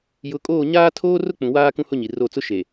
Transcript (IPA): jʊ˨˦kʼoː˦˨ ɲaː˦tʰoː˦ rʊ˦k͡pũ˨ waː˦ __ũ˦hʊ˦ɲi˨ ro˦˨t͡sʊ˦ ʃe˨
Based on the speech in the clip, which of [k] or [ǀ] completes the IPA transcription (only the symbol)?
k